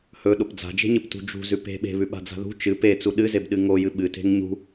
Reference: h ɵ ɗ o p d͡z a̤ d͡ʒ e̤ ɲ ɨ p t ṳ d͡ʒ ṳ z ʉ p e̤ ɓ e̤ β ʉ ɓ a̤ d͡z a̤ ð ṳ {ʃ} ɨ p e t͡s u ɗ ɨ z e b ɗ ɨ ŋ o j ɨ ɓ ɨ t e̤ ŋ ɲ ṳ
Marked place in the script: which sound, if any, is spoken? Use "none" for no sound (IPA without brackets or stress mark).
t͡ʃ